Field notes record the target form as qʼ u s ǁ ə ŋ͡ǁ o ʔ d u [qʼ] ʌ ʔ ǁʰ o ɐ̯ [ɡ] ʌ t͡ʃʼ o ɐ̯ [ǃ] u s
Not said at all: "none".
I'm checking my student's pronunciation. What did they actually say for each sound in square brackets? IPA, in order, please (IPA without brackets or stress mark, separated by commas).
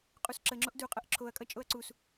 qʼ, kʼ, ǀ